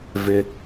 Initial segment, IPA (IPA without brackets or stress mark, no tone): v